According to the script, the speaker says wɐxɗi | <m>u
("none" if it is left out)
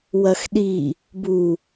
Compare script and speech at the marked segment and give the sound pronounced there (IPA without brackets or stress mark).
b